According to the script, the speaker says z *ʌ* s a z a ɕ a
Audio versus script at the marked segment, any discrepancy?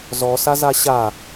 yes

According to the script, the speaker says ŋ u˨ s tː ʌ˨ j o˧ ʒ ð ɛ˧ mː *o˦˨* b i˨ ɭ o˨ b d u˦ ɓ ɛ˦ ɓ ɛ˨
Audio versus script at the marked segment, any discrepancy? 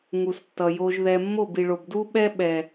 no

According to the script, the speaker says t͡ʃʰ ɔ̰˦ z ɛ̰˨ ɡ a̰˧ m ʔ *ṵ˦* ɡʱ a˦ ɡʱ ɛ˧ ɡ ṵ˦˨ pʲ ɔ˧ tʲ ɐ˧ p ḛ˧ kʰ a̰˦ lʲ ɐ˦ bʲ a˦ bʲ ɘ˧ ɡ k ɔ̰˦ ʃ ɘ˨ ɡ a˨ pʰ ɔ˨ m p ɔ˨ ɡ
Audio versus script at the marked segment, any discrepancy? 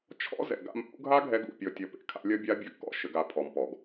no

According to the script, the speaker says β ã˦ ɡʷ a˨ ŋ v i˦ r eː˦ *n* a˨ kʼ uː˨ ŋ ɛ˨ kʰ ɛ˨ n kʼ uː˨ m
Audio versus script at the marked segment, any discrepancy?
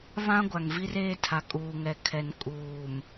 yes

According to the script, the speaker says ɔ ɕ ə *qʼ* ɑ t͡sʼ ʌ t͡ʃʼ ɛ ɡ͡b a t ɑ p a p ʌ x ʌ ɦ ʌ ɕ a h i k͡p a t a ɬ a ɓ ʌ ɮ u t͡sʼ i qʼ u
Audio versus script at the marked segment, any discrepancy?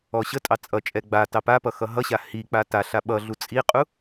yes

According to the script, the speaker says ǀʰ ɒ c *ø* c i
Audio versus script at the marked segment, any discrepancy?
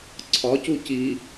yes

